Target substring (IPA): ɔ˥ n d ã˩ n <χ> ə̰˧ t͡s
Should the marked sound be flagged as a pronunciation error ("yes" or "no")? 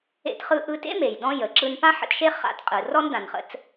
no